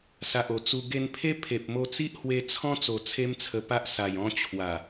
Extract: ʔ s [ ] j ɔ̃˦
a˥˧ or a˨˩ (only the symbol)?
a˨˩